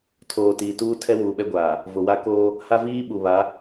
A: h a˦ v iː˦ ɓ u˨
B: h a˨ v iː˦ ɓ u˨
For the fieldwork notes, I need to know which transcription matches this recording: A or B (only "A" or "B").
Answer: A